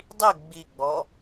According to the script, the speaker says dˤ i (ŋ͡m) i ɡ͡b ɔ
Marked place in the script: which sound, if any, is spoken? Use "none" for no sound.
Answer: ɡ͡b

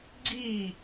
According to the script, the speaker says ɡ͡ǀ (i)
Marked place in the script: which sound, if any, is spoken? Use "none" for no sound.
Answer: i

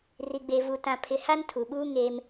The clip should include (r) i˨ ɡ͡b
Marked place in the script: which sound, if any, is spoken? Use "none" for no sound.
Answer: r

